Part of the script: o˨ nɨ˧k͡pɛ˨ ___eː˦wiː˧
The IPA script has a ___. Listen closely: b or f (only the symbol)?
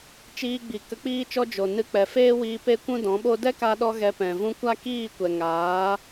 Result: f